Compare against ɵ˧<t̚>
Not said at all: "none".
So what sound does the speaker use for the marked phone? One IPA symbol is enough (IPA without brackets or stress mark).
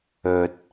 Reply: t̚